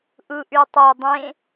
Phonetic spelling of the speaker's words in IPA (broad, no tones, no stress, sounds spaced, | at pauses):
ʔ u ʔ ʉ tˤ a dˤ ẽ